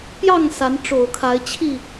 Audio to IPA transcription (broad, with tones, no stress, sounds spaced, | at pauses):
p j ɑ˥˨ ŋ s a˨˦ n ʈ͡ʂ o˨˩ ʊ̯ kʰ a˨˦ ɪ̯ t͡ɕʰ i˥˨